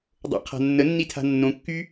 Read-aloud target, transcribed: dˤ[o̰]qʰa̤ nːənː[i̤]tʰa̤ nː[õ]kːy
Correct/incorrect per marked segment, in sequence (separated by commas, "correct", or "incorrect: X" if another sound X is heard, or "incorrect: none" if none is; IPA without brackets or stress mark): correct, incorrect: i, correct